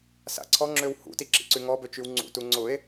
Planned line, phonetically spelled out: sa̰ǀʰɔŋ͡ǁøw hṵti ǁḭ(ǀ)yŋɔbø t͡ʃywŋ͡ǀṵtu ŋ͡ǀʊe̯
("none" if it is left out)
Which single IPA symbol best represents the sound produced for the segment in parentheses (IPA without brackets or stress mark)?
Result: ǀ